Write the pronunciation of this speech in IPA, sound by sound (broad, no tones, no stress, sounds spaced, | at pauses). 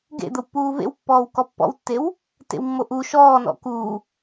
ɡ ḛ d̪ ə w pː uː v ḛ w pː ɔː w k ɔ pː ɔ̰ w tː e w | t ḛ w mː o ʔ u ʃ ɔː n ɔ̰ k uː